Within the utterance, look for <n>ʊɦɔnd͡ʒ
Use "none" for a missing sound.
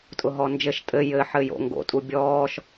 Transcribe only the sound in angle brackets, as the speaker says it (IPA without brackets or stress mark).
tʼ